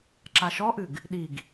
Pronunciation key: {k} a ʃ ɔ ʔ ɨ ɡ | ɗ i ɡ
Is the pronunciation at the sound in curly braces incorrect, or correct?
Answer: incorrect